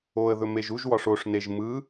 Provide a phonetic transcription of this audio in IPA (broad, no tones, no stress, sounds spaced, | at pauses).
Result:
o ə̯ ð ɵ m e ʒ u ʒ w ɒ ʂ o ʂ n e ʒ m ɯ